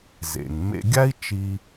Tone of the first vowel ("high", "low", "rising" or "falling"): low